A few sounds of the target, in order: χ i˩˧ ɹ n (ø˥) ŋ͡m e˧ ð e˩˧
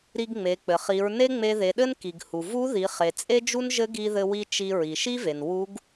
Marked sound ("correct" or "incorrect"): incorrect